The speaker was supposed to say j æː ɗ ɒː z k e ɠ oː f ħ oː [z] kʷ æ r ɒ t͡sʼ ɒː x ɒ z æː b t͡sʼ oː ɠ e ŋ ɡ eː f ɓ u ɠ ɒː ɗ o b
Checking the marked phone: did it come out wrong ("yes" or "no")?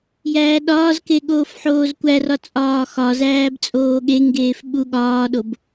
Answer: no